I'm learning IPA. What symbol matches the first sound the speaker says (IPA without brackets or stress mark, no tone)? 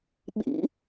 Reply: ɓ